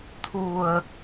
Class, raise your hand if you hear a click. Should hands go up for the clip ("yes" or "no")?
no